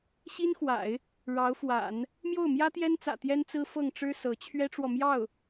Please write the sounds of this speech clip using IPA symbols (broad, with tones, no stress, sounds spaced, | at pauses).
ɕ i˥ n x w a̰˨˩˦ ɪ̯ | ɻ ɑ˧˥ ʊ̯ f w a̰˨˩˦ n | m j o˥˩ ʊ̯ m j ä˥ t̪ j ɛ˥ n t͡s ä̰˨˩ t̪ j ɛ˥ n t͡s ɹ̩˥ f ɤ˥˩ ŋ ʈ͡ʂ ɻ̩˥ s ɤ˧˥ t͡ɕʰ ɥ ɛ˥ ʈ͡ʂ w ɔ˨ m j ɑ˥˩ ʊ̯